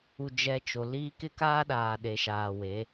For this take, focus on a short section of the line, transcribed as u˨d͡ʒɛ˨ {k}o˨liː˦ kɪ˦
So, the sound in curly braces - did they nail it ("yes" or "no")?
no